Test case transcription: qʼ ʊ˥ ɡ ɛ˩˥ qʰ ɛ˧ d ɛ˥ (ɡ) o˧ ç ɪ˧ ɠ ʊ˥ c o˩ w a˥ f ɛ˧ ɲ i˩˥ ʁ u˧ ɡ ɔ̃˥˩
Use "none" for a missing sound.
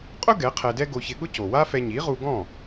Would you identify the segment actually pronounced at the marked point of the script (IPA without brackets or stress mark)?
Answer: ɡ